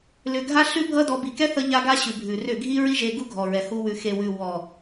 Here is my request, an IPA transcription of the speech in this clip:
lʏ˨ ɡʱa˧ɬʉ˧ bʱʌ˦dɔ˧ bi˨kɛ˦θʌ˧ ʎa˧ɡa˧ ɕʉ˨bʱʉ˨rʏ˦˨ ɡʱi˦ɹi˦ʒe˧ɡu˦ ɡʱɔ˨ɹɛ˨hu˧ wʉ˨xe˨wʉ˨ wɔ˨

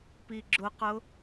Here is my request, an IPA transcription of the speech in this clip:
piɡ͡ǁʊqʊ

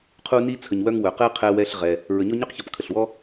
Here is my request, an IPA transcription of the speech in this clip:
qʰu˦ni˦t͡sʰə˨ɲwœ˦ŋ wœ˩qɛ˦ qʰɛ˦wɛ˦ɬ ʁɛ˨ | ɹə˨ɲɔ˥ɲœ˥qçɔ˨p kʰə˩ɬwɔ˦

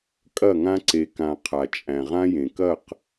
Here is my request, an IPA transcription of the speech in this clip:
kʼɐ˦˨ŋã˦ ǀe˨kã˨ qʰa˨t͡ʃʼæ̃˨ʁã˦jẽ˨ kɐ˦˨q

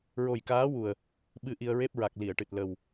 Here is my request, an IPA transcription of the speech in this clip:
ɹo˨˩jkaː˧˥wu˨˩ə̯ | ɓɨ˧ ʔi˧ə̯ɹe˦˥p̚ ɹa˨˩k̚li˨˩˨ə̯ʈɨ˨˩t̚ lə˨˩w

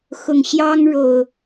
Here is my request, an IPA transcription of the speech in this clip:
xʊ˨˩ŋ ɕjɑ˦ŋɻo˨˩ʊ̯

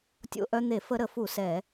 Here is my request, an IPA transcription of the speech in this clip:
tʲo̰˧ʔœ˧n̪e˧˩˧ fə˧ ɾə˧˩˧fu˧˩˧ sɛ˧˩˧

